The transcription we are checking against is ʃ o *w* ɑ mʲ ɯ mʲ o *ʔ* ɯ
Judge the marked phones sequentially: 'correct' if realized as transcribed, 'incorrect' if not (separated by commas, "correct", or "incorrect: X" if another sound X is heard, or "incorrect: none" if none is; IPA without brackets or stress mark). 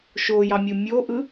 incorrect: j, correct